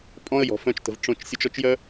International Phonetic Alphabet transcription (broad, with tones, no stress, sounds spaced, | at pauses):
pʼ ɔ̃˦ ə̯ j ɔ̤˨ f œ̃˧ t͡ʃ t ə̤˨ v ʈ͡ʂ õ˧ t͡ʃ sʲ o˧ t͡ʃ ɔ˦ t͡ʃ j œ˦